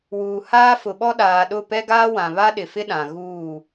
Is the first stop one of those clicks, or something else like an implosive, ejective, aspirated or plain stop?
implosive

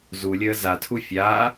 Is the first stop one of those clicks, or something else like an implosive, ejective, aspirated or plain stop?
aspirated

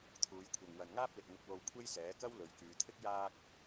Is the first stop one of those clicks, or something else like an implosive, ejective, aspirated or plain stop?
aspirated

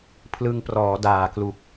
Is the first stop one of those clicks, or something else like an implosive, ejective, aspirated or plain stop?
aspirated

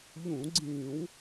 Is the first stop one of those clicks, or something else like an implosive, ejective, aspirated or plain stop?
click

